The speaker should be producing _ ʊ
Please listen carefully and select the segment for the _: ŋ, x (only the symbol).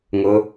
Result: ŋ